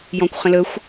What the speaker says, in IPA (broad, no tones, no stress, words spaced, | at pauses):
jɔ̃kʷχə̃ləxʷ